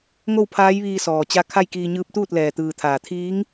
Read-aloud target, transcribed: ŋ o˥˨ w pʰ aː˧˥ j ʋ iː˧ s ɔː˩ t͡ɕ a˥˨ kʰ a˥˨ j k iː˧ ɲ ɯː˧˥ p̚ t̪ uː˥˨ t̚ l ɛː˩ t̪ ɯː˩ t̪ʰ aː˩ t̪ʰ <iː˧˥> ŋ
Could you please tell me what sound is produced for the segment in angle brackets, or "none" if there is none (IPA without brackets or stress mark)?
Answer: iː˧˥